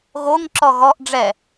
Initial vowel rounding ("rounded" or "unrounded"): rounded